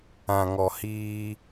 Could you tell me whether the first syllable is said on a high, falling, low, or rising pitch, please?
low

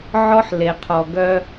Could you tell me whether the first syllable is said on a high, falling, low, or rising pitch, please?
high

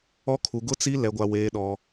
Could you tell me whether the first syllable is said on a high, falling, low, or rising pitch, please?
high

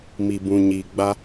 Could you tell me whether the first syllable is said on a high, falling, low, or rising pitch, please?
low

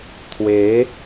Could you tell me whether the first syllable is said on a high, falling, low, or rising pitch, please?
rising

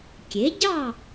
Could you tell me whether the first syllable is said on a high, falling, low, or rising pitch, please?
rising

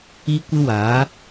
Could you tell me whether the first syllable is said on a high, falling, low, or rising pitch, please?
high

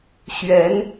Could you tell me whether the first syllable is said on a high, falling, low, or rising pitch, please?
rising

